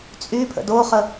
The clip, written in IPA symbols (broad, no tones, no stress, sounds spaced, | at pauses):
t͡sʼ y pʰ ə̰ d o χ ə